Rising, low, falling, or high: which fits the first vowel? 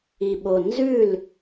low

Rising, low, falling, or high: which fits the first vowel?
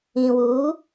low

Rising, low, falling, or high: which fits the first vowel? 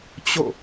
falling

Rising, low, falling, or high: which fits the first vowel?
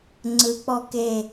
rising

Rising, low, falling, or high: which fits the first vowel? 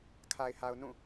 low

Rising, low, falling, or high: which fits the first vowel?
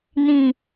low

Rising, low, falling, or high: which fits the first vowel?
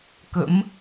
rising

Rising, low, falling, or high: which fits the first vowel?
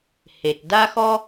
low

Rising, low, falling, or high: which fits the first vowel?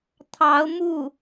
rising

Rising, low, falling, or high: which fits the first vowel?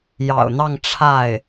low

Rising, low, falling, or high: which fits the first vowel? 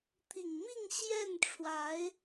low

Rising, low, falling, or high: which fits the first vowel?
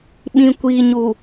low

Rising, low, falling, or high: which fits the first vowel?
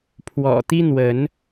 low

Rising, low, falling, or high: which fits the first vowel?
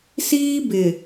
high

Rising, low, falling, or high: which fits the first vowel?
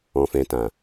low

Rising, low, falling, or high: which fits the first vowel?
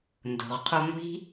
low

